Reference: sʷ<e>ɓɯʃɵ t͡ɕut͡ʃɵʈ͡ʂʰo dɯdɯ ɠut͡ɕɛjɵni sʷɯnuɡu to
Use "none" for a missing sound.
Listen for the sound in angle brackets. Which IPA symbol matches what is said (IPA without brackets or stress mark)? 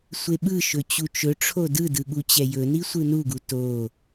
e